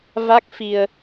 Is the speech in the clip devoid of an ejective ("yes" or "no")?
yes